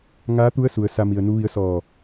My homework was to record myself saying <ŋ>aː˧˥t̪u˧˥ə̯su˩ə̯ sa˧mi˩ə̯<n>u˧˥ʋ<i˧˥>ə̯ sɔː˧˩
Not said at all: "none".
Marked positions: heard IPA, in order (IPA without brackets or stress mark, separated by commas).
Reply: ŋ, n, i˧˥